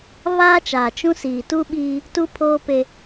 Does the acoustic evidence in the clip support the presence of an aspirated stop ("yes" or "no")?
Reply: yes